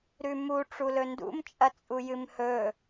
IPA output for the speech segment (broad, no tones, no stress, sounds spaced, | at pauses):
ɾ ʉ m u ʈ͡ʂ u l ɵ n d ṵ m t͡ʃʼ ɐ t͡sʼ u j ɨ m h ɵ